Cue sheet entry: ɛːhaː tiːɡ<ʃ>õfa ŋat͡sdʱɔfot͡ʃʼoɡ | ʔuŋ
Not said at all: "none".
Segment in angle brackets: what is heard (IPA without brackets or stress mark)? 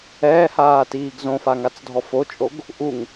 z